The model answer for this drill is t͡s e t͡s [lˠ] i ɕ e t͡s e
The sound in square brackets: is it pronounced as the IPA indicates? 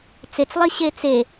yes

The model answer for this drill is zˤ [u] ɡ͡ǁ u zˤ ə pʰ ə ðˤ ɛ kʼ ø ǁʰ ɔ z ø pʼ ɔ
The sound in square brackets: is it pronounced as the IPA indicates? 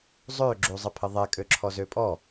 no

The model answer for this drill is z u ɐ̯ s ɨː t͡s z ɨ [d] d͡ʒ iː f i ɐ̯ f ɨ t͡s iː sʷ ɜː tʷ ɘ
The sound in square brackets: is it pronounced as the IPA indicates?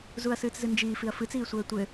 no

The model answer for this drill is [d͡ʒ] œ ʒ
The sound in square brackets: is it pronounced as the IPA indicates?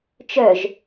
no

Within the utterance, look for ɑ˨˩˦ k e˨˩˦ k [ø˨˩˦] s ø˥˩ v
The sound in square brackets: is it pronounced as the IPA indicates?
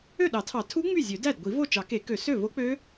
yes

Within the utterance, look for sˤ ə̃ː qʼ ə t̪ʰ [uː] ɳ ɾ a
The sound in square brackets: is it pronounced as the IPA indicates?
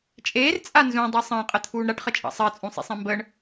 yes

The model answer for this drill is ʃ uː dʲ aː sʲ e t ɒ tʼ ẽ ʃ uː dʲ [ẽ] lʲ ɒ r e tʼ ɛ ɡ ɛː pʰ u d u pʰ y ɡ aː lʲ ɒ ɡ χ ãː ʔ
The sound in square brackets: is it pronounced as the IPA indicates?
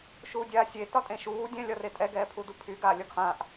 no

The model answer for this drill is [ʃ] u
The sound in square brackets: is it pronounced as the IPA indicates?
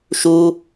yes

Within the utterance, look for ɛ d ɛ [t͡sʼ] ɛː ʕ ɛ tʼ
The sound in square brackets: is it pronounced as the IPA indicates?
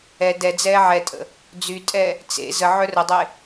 no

